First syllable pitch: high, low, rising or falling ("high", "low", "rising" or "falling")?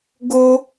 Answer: high